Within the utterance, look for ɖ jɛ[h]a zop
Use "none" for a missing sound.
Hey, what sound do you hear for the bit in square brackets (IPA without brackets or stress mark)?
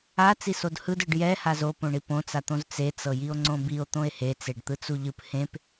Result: h